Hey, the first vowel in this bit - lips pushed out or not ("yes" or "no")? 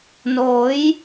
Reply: yes